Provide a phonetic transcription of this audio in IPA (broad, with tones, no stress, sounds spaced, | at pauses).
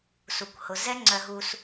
s u˨ kʷ h ʊ˨ z ɛ˦ ŋ͡ǀ œ˧ ɦ u˧ s